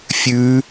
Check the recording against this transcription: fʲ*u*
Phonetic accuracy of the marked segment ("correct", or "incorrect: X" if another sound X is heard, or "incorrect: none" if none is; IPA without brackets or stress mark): incorrect: ʉ